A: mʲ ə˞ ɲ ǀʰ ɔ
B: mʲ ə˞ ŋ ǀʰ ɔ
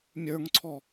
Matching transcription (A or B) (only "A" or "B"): B